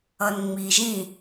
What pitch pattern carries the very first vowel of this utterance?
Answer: low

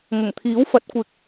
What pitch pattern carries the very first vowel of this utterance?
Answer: low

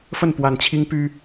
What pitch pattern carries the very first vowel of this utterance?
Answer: falling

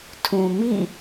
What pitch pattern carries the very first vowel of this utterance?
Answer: low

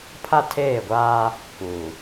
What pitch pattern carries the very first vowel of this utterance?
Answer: high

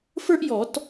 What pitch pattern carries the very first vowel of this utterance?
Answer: high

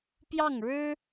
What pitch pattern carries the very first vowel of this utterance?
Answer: falling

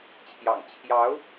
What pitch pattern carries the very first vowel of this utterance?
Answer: low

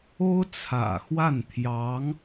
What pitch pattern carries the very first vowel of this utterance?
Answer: high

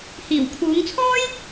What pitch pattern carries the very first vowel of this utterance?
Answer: low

